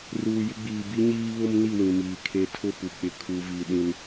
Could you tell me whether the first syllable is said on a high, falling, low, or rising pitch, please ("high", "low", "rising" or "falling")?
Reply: low